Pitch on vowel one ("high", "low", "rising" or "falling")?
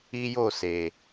high